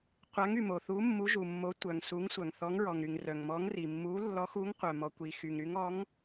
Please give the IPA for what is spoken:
qʷa˨˥ŋy˩mo˩θu˨˥ mːu˨˥ʒu˩mːo˨˥tʷœ˩ŋ su˨˥ŋsʷœ˩ŋ θɔ˨˥ŋɹɔ˩ŋɾy˩ŋ rœ˩ŋmɔ˨˥ŋri˩ mːu˨˥ lːɔ˨˥xu˨˥ŋqʷœ˩ mɔ˩kʷi˩xy˩ŋɾy˨˥ŋ ɔ˨˥ŋ

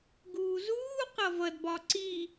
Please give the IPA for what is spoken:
ɡuːzuː qʌvʌd bɒǀi

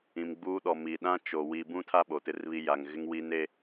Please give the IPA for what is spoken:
ĩ˨mɡ͡buː˦ɗɔ˨miː˨ ɗã˦t͡ʃo˨ wi˨ bũ˦tʰa˦ ɓo˨tɪ˦rβi˦ ja˨ŋɣɪ˦ŋwi˦n e˦

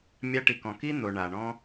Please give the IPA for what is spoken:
mʲa˧ʈi˨kɔ̃˨ ki˦n̪o˨ ɳa˨ɳɔ̃˦

